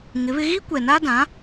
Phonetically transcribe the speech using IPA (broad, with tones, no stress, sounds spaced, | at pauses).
ŋ ɪ˨˦ β ɪ˦ ɣ i˦ kʷ ɛ˨ n a˦ d ã˨˦